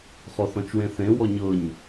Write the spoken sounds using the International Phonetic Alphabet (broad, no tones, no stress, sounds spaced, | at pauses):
χ ɔ θ ɔ̃ t͡ʃ w ẽ θ ẽ w ɔ ɲ ɤ ɲ